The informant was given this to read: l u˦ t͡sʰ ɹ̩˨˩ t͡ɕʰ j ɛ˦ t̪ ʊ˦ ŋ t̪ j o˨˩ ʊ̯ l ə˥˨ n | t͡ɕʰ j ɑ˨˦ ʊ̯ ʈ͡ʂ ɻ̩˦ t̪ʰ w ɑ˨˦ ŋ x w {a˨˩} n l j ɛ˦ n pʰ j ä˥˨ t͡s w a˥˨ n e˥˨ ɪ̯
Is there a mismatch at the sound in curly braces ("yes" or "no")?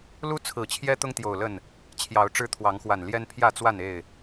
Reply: no